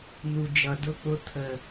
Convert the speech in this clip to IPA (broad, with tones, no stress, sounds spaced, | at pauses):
n̪ u˨ d͡ʒ ʌ˨ d ʊ˧ k͡p ʊ˧ t̪ʰ ə˨